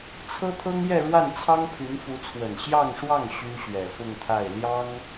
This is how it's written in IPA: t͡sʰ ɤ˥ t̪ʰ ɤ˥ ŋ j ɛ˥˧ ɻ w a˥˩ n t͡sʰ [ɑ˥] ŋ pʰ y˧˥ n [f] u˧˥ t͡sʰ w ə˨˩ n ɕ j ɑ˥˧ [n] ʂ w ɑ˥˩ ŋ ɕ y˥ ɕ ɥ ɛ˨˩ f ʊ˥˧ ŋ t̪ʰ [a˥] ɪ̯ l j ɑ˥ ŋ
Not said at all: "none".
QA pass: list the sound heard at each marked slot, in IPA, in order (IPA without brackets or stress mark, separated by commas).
ɑ˥, f, ŋ, a˥˩